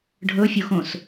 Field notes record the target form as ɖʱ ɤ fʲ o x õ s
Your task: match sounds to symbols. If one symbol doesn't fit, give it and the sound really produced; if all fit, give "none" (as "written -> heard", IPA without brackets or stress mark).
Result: none